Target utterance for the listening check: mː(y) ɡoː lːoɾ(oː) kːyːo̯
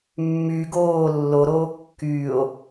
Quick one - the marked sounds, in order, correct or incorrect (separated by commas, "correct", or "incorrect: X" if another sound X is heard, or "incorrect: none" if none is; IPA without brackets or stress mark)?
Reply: correct, correct